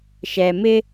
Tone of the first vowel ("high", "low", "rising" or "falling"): low